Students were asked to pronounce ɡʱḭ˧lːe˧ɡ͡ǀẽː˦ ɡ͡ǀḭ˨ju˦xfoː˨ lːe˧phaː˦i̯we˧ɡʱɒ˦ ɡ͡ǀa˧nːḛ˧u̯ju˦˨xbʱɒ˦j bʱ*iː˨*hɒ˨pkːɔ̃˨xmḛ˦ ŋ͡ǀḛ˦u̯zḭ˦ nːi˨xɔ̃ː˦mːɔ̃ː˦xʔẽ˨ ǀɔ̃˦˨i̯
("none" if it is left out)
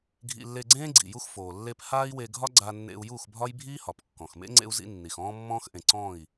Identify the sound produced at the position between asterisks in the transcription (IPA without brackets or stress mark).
iː˦